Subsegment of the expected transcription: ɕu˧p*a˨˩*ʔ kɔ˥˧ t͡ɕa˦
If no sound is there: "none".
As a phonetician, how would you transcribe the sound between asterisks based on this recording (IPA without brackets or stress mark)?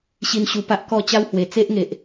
a˦